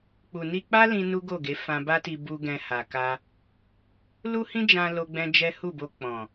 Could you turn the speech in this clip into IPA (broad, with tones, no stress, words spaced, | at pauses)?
k͡pu˨ni˧k͡pa˦lĩ˧ nu˦ɡo˦˨ɡe˨˦ fã˧ba˦ti˧ bu˦ ɡɛ̃˧ha˨ka˧ | lu˦hĩ˦d͡ʒã˧ lo˦ɡ͡bɛ̃˦ d͡ʒɛ˦ hu˦˨bo˧ k͡pɔ̃˨